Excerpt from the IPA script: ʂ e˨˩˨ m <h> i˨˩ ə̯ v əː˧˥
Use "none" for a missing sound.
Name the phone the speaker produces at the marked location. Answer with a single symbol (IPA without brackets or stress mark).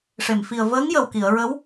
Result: f